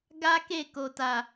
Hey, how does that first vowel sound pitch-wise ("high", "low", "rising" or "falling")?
high